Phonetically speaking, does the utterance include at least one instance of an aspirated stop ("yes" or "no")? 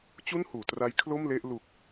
yes